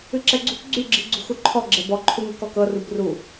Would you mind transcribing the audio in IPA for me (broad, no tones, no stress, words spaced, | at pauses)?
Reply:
ɨǁɛɡ͡ǀṳk ɡ͡ǀyɡ͡ǁi ɡ͡ǀṳxuǃʰɔ ɡ͡ǁɛbɔǃʰu ŋɛ̤kɔkɤrub ru